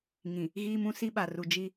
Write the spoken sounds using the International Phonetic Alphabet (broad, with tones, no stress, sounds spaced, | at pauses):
ŋ ĩ˨ | ɣ iː˦ m ũ˦ s i˦ ɓ a˨ r u˨ d͡ʒ i˦